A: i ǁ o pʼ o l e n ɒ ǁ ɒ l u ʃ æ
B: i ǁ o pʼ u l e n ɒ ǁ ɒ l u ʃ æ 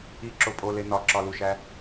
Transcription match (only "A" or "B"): A